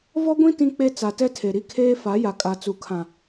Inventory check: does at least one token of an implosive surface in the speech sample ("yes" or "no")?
no